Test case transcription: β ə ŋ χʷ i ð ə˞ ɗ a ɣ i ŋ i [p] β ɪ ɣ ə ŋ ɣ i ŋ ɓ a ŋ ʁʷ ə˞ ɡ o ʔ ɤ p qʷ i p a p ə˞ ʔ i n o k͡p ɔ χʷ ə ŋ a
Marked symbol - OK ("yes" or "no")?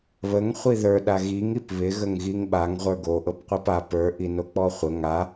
yes